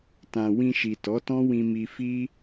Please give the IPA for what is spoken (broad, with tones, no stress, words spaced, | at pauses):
tã˨ wĩ˧ʃi˨ tɔ˨˦tɔ̃˦wĩ˧mi˧ fi˦